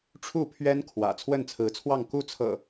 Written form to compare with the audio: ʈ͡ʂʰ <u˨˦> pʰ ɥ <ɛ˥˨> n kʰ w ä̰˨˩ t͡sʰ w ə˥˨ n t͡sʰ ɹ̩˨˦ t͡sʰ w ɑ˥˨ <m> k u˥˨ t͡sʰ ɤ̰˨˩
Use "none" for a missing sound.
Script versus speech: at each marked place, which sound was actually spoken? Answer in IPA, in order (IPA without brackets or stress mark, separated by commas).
u˥˨, ɛ˦, ŋ